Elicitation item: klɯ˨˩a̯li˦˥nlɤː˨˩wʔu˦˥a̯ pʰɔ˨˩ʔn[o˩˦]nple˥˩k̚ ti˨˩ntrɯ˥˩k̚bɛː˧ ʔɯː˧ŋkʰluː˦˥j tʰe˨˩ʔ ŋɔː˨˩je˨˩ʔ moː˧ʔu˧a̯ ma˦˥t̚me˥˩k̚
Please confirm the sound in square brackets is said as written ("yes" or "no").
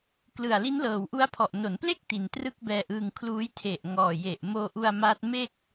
yes